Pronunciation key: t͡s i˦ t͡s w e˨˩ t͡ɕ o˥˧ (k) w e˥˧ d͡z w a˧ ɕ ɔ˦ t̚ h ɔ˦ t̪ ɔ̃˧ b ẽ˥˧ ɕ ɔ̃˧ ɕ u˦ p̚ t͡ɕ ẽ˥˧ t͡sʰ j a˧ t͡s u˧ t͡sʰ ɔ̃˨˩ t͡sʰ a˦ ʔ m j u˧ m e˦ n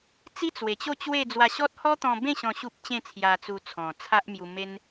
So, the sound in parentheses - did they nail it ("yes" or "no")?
no